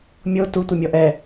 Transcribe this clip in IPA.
mʲo tu tʷɤmʲɔʔɛ

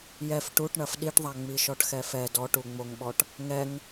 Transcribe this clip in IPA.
jɛf ʈuʈ ɳɐfɗiʈðˤa ŋ͡miʃɔʈxɛfɛ dɔʈuŋ͡moŋɓɔʈ | ŋɛŋ

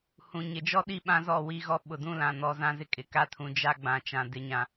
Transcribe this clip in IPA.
hũ˨ ɲɪ˨d͡ʒɔ˦ɗi˦˨ ɓã˦zɔ˦˨ wi˦ɣɔ˦ ɓʊ˨dũ˦lã˨ nɔ˨˦zã˦zɪ˦ kʼɪ˨ka˦tʰũ˨ d͡ʒa˦ɡ͡bã˨t͡ʃã˨ dɪ˨ɲã˨

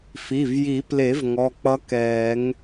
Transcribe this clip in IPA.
fi˩˧˩vji˨˩˦ple˨˩˦v ŋɔ˩˧˩k͡pʌ˧˥kɛː˨˩˦ŋ

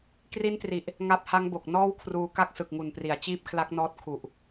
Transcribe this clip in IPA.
kri˦˥ntri˨˩ʔ | ŋa˦˥p̚ha˦˥ŋbo˨˩k̚ nɔː˥˩wkʰruː˧ ka˥˩k̚sɯ˨˩k̚ŋu˨˩npri˩˦a̯ t͡ɕiː˥˩p̚kʰla˦˥k̚nɔː˦˥t̚ kʰu˨˩ʔ

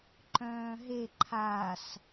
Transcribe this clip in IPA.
ǃœ̃ːɦe ǃʰas

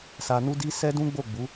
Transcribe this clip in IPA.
sa˨nu˧di˧ sɛ˦dũ˦ɡ͡bo˦˨ɡ͡bu˨˦

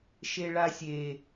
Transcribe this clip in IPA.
ʃeɭasʲe

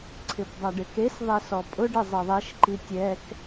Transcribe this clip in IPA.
ǀʰɪpdˤaɖɪkes ðˤesɔpʼʊ ɖɪzˤeðˤeʃǃi tʲɛk

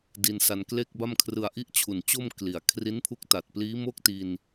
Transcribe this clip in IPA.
di˧nsa˧n kle˥˩k̚ba˥˩mkʰrɯ˧a̯ ʔi˥˩ʔt͡ɕʰu˨˩nt͡ɕo˥˩m kli˨˩a̯ kʰri˦˥npʰu˦˥k̚ta˨˩t̚pliː˦˥ mo˥˩k̚ti˧n

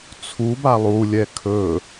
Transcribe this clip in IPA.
t͡sʰub alˠulʲɛ kʰɵ

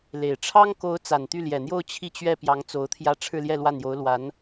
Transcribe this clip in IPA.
le˨˩ɪ̯ ʈ͡ʂʰɑ˥ŋko˧˥ʊ̯ t͡sa˨˩nt̪y˥˩ljɛ˨˩n̪jo˥˧ʊ̯ t͡ɕʰi˥˧t͡ɕɥɛ˥˩ pjɑ˧˥ŋ t͡so˧˥ʊ̯t̪ʰjä˥˧ ʈ͡ʂʰɻ̩˥˧ljɛ˥˧ lwa˥˩n jo˧˥ʊ̯ lwa˧˥n

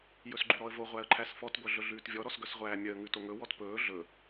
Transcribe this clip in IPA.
jɵsɡ͡ǃʉɾɔə̯vo ʁʷæə̯ǃʰæsfɔt ɡʷœɮɵɮʉːtvʲɔ ɾɔsɡœsʁʷæːmʲœə̯ ŋʉtoŋɵ wɔtpɵː ɮɵ

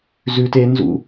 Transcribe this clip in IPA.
zʉ tenzṵ

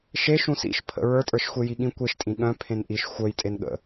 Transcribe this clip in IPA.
ʃe ʃũsḭʃ pʰə̰ ɹə˞tʼə˞ʃxʷe jiɠĩ kʷeʃtʼĩ ɠœ̃ pʰẽnʔiʃ xʷœj tʼenɠə̰

